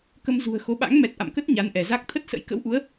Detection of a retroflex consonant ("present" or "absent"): absent